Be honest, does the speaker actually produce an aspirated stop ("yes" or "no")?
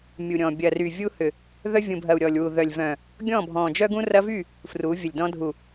no